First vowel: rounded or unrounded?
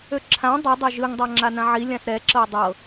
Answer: rounded